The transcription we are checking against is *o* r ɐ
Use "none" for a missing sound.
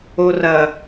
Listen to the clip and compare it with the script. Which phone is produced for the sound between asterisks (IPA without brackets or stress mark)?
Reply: o